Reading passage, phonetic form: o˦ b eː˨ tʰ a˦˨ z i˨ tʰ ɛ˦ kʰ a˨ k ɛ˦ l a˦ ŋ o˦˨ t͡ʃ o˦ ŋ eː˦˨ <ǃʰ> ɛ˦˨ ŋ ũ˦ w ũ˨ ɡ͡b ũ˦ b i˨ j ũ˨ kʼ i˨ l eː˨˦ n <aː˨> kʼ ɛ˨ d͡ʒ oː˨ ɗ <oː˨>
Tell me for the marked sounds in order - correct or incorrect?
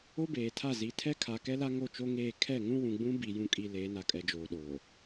incorrect: kʰ, incorrect: a˨, correct

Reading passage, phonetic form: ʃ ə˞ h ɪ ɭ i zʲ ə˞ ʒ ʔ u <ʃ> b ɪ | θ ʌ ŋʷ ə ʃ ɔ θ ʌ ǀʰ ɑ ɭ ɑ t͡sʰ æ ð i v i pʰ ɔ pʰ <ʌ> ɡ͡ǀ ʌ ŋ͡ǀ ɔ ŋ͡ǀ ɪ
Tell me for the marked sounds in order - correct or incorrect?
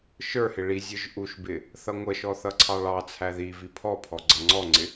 correct, incorrect: ɔ

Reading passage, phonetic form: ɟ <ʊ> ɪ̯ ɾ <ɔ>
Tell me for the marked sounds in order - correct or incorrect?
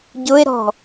correct, incorrect: ɔ̤

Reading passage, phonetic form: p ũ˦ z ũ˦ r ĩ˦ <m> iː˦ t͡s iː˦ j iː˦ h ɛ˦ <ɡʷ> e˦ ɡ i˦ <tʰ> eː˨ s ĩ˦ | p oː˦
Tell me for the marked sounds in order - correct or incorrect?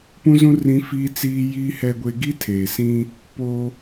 incorrect: f, correct, correct

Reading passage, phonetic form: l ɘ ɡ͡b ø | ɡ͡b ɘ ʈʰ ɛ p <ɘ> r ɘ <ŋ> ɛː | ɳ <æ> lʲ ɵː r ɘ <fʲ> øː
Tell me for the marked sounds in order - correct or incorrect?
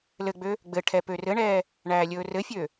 incorrect: ø, incorrect: ɳ, incorrect: æː, correct

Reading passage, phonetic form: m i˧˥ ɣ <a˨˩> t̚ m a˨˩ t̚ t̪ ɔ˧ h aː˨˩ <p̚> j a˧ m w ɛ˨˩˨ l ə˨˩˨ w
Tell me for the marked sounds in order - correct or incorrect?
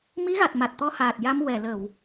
correct, incorrect: t̚

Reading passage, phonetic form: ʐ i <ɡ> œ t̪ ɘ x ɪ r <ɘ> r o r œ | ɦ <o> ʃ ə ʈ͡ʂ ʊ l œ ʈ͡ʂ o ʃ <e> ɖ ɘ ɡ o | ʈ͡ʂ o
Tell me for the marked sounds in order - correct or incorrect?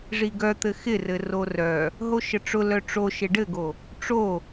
correct, correct, correct, correct

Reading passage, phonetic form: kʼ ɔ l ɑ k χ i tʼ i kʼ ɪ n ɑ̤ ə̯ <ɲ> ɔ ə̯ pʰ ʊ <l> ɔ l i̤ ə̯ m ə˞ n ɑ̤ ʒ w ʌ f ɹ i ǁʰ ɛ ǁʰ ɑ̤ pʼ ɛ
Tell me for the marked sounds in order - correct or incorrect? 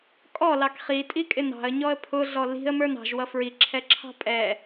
correct, incorrect: ɮ

